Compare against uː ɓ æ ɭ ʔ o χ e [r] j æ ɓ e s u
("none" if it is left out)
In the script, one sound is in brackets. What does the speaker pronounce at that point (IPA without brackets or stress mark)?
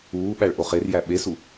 r